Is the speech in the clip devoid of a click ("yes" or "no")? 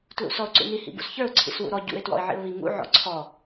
no